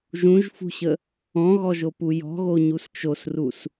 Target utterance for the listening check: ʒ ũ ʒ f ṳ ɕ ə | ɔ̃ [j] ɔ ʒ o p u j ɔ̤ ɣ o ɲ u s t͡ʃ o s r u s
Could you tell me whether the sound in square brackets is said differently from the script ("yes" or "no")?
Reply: yes